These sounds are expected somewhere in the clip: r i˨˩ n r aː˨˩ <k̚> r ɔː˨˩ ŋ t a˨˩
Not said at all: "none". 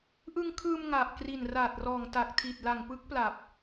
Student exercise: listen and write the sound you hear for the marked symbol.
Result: t̚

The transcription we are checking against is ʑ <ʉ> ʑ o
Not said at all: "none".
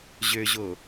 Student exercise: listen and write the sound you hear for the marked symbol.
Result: ø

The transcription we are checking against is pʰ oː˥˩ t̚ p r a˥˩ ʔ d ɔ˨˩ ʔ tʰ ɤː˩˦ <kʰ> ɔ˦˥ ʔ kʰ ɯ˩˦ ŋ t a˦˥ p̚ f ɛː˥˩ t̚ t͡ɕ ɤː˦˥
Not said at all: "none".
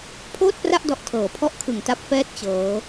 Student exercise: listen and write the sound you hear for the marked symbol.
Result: pʰ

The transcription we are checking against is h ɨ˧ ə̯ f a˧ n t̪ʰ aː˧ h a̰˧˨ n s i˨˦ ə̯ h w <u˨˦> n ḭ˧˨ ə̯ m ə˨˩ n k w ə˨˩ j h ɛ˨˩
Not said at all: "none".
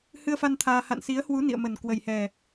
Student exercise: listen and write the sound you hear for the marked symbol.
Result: u˨˦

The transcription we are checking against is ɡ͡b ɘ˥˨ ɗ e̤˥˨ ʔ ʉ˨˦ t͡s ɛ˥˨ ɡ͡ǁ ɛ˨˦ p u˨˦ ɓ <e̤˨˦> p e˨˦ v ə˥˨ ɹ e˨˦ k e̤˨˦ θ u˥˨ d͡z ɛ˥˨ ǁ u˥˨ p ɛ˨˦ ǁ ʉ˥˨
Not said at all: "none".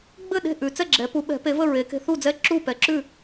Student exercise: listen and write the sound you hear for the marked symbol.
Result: ɛ̤˨˦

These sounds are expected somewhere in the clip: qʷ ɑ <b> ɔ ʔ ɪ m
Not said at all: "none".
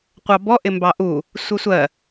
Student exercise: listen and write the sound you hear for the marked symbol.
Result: b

